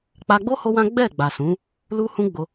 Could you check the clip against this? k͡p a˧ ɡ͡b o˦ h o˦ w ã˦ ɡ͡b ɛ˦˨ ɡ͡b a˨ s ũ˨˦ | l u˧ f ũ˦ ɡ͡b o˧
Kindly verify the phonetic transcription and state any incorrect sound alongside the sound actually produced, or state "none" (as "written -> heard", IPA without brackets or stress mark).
f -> h